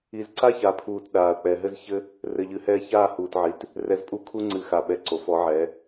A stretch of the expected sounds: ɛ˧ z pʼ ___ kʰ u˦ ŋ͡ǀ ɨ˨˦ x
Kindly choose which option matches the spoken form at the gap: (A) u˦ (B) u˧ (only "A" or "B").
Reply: A